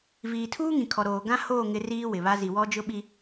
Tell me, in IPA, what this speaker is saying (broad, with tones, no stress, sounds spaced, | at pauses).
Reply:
v iː˨ tʰ uː˦ ŋ ĩ˨ kʰ ɔ˨ ɾ oː˨ ɡ ã˦ h oː˦˨ ŋ ɪ˦ r iː˦ w ɪ˨ β a˦ z i˨ w ɔ˦ d͡ʒ ʊ˦ ɓ i˦